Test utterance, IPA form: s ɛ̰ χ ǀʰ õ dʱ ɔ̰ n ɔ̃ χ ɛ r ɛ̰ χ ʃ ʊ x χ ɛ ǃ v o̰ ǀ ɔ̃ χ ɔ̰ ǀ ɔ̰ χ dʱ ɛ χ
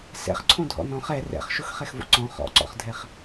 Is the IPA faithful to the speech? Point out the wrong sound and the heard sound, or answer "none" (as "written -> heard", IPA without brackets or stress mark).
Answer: ǃ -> x